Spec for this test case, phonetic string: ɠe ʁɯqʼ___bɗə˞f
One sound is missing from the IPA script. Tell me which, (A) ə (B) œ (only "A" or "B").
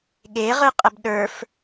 A